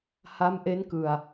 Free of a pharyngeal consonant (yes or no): yes